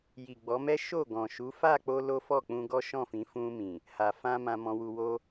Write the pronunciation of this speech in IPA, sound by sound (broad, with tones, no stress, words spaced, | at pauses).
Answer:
ji˨ɡ͡bɔ˨˦mɛ˦ ʃo˦˨ ɡɔ̃˨ʃu˨˦ fa˦˨k͡po˧ lo˦fɔ˦˨k͡pũ˧ɡɔ˦ ʃɔ̃˦˨fĩ˨˦ fũ˧mĩ˨ | ha˨fã˧ mã˧mɔ̃˧wu˧ wo˧